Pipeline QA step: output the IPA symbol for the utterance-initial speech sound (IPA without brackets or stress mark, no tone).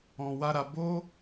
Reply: ɔ̃